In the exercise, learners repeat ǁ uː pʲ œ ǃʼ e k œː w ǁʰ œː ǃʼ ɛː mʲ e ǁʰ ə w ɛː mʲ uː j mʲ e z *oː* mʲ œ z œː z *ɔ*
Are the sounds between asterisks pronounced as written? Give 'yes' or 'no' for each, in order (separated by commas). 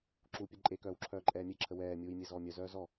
no, yes